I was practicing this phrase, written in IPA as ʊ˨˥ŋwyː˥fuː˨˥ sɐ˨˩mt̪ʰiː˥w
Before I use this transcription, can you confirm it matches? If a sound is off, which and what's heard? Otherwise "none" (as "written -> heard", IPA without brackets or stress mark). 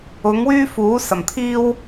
none